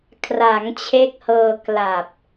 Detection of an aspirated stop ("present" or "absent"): present